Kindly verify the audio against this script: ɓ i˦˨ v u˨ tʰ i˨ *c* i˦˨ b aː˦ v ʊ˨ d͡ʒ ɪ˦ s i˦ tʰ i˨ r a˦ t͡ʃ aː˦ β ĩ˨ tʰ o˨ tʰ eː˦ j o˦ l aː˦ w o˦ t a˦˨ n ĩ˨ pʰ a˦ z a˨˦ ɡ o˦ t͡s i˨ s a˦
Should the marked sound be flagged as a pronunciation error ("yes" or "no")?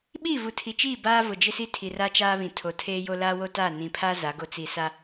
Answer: yes